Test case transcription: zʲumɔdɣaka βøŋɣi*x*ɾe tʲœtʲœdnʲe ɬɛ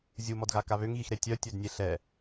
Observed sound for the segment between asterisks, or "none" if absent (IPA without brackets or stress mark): x